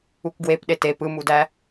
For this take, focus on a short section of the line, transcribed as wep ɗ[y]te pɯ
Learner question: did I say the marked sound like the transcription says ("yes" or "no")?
no